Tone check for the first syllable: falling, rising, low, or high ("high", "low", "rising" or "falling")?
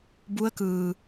rising